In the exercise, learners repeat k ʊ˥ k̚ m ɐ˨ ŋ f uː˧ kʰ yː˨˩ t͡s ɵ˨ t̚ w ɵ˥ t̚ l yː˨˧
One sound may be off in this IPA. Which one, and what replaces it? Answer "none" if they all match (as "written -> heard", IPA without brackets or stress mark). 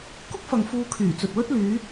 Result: m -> f